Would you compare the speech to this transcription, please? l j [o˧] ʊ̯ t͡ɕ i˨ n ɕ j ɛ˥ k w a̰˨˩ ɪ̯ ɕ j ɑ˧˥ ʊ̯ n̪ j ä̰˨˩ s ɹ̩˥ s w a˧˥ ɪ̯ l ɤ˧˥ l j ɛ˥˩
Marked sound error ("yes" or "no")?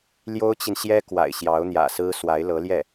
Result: yes